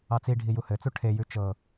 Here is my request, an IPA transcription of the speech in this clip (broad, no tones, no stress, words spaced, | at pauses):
ɑt͡si ɖʱijuhɘt͡su ʈʰejʉ t͡ʃɤ